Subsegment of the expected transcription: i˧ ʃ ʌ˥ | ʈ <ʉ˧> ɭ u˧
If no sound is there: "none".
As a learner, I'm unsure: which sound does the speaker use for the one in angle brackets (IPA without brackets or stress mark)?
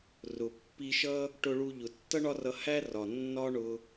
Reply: ʊ˧